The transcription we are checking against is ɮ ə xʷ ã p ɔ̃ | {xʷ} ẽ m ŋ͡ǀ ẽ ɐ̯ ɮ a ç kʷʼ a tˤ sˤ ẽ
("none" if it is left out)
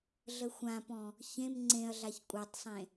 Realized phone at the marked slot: ç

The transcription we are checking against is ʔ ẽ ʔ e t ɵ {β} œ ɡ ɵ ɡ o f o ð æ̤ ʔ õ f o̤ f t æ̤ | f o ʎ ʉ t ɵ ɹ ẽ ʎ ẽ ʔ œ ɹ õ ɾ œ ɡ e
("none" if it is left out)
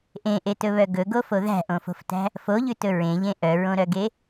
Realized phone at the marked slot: β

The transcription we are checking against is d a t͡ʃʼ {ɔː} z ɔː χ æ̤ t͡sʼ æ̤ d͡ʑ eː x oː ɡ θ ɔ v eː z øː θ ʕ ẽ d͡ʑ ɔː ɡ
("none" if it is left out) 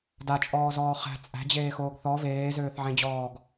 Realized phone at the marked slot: ɔː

